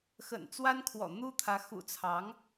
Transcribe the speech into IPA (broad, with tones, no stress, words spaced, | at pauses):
xə̰˨˩nt͡swa˥n kʰwɔ̰˨˩n̪u˥t̪ʰä˧˥ xṵ˨˩t͡sʰɑ˧˥ŋ